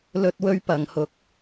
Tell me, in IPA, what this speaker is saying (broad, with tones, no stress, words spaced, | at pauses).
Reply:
lɵ˥t̚wɵ˥ɥpɐ˨˧ŋ hʊ˧k̚